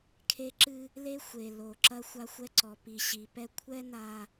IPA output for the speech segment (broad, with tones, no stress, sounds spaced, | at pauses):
kʰ e˦ ǁ ɨ˦ | l e˦ xʷ e˨ l o˨ ǁ ɐ˦ xʷ a˦ xʷ ɛ˦ ǀ ɔ˨ p i˨ ɕ i˨ p ɛ˦ kʷʰ ɛ˦ n a˨